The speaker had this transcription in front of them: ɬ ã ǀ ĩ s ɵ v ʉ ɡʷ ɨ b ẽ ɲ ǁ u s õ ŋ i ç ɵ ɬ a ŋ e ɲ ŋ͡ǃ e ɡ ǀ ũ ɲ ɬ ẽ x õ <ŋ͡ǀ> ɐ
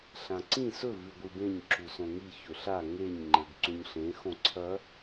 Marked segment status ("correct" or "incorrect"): incorrect